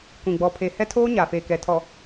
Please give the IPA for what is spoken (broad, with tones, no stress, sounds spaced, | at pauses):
kʷ ĩ˨ ɡ͡b ɔ˨ pʰ e˨ h ɛ˦ tʰ oː˦ ɲ a˨ f eː˨ k ɛ˨ tʰ ɔ˨